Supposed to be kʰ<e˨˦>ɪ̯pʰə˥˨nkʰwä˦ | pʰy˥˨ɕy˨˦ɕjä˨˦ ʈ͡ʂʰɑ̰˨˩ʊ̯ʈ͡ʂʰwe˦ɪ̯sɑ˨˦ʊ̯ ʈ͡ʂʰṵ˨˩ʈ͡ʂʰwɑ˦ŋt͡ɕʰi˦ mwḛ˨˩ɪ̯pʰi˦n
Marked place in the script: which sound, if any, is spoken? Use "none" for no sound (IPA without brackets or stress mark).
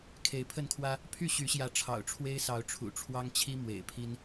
e˨˦